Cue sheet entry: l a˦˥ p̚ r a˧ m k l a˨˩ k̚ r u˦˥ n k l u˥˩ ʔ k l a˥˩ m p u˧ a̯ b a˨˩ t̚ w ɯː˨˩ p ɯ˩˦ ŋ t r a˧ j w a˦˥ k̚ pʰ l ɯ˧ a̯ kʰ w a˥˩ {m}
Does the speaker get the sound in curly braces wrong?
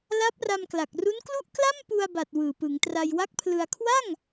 yes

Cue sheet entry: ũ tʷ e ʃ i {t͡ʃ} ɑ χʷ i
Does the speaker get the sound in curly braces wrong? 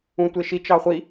no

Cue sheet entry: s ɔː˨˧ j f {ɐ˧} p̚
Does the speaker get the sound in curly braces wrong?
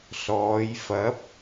yes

